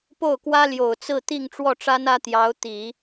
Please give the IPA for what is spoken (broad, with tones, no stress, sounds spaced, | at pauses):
p o˥˩ ʊ̯ k w ä˥ l j o˨˩ ʊ̯ t͡s ɹ̩˥˧ t̪ i˥˧ ŋ ʈ͡ʂ w ɔ˥˩ ʈ͡ʂ a˥ n ä˥ t̪ j ɑ˧˥ ʊ̯ t̪ i˨˩˦